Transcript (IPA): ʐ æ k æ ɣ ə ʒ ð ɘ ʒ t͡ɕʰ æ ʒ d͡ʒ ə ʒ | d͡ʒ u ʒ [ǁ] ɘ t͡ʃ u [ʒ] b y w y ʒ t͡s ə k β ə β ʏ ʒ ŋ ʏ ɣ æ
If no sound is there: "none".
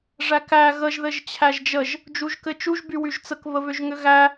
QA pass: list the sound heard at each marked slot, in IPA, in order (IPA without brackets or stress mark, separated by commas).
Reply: k, ʒ